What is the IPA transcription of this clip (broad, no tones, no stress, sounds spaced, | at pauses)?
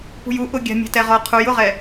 p ṳ j u ʔ ʊ ɡʲ a̤ mʲ a̤ t ɛ ʁ ɔ qʰ u j ʊ ʁ ɛ